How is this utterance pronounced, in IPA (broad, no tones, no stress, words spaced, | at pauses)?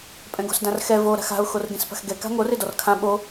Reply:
pʼɛ̃ɡo̤sdãrxɛ vo ɾa̤xa̤ʊ̯ xorɡẽspa̤xɡɛ ka̤ŋor edɔrkʰã ɓo